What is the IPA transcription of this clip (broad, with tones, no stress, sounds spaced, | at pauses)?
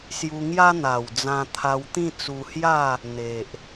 s j u˧ ŋ j a˦ n̪ a˨˩ w d͡z ã˧ t̪ʰ a˧ w t̪ ĩ˥˧ t͡s u˧ h j a˥˧ | n̪ e˨ ʔ